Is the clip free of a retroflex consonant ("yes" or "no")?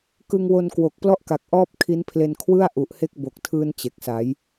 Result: yes